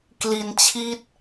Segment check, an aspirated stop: present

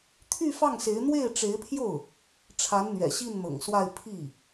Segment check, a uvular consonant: absent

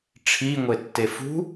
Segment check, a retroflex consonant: present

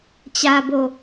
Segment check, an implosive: absent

